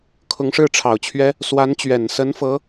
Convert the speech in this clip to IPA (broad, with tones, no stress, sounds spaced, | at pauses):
kʰ ʊ˧˥ ŋ ʂ ɻ̩˥˩ ʈ͡ʂʰ ɑ˨˩ ʊ̯ t͡ɕʰ ɥ ɛ˥ | s w a˧˥ n t͡ɕ ɥ ɛ˨˩ n s ə˧˥ n f ɤ˧˥